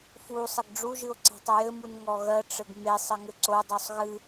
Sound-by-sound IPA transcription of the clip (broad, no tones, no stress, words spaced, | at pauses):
fusˤəɡ ɖ͡ʐuʒɨo̯ ǀe̤tˤəjɘmun ŋɔɣɜʈ͡ʂɘɡ mesˤ ɘŋɘǀodˤusˤ ɣɨ